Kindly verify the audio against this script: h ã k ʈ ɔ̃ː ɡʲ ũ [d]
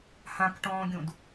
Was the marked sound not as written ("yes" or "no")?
no